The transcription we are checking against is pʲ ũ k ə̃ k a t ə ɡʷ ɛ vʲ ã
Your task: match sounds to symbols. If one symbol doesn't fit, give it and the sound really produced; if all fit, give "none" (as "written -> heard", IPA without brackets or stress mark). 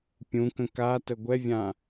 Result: none